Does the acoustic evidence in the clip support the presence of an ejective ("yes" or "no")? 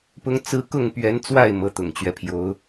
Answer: no